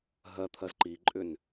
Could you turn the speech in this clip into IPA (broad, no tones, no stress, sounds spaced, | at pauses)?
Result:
ɦ ɜ t̪ʰ ɜ z ǃ i ǃʼ ʏ n